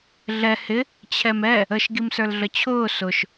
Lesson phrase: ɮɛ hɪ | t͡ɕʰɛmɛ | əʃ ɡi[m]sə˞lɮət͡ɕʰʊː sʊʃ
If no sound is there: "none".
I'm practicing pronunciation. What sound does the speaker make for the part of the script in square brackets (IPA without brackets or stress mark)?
m